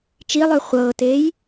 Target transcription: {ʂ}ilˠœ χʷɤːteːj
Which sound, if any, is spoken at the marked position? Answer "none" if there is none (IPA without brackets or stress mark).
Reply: t͡ʃ